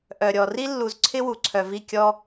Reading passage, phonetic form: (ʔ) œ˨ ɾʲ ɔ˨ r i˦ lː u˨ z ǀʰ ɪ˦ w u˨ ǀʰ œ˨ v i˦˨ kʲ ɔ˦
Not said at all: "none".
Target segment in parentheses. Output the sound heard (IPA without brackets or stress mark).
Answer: ʔ